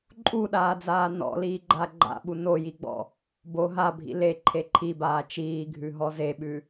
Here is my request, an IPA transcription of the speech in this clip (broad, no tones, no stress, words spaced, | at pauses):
ǃʼuɗaːd͡zaː nɔ̰liːɡ͡ǃa ɡ͡ǃa̰ɓu nojiɡ͡bɔ̰ | bo ɦabʱḭ leǃʰe ǃʰibaː t͡ʃiːɡʱʉɦɔ zeɓʉ